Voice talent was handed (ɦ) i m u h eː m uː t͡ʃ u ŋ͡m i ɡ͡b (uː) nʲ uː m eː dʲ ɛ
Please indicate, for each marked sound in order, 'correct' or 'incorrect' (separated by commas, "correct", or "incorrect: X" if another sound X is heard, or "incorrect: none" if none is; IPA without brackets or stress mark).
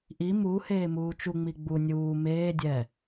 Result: incorrect: ʔ, incorrect: u